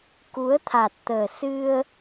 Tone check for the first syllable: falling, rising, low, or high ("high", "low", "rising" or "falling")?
rising